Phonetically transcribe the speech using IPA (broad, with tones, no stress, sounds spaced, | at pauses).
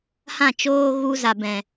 h ã˦˨ t͡ʃ oː˦ ɣ u˦ z a˨ b ɛ̃˨